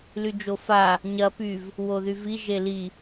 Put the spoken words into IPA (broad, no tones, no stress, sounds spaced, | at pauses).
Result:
l y d͡ʒ o f a | ɲ ɐ p y v | w o ð y v i ʒ e l i